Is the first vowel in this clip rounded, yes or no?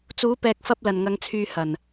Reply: yes